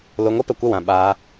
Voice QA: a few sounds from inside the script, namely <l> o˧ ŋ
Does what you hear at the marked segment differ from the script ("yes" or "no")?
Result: no